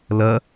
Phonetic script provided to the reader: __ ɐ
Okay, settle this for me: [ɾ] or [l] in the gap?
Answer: l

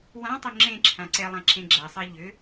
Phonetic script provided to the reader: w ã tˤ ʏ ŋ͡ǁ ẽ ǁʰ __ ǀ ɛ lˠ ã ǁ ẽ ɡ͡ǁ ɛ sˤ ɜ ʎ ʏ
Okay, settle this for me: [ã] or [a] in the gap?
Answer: ã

